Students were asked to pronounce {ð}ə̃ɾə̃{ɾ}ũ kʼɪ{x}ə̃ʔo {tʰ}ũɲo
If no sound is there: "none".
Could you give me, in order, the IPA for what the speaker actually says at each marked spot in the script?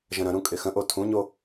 ʒ, ɾ, x, tʰ

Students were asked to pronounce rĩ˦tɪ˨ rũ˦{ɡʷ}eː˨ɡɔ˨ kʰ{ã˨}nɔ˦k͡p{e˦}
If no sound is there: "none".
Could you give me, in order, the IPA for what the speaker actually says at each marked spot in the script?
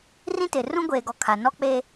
ɡʷ, a˨, e˦

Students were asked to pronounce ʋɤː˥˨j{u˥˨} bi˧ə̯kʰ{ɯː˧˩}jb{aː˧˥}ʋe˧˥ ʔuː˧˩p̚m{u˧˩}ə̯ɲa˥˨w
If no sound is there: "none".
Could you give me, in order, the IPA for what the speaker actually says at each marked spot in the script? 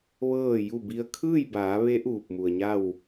u˥˨, ɯː˥˨, aː˩˧, u˩

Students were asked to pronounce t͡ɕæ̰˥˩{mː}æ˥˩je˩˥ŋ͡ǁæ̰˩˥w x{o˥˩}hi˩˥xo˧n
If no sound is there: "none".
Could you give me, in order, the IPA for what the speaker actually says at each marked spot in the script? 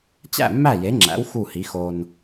mː, u˥˩

